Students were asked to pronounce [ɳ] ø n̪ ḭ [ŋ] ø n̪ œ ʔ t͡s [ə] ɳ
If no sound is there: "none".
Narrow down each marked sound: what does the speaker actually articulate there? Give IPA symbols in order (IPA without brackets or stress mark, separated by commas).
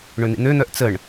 ɳ, n̪, ə